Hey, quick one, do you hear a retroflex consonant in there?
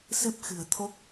no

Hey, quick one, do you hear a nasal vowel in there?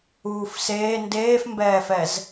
no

